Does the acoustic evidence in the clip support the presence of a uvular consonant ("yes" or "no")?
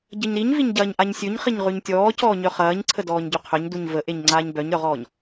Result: yes